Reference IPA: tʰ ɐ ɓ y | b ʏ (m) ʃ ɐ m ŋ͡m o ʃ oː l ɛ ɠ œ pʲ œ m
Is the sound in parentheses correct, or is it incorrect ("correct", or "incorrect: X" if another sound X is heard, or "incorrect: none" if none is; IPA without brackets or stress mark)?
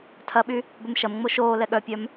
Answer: correct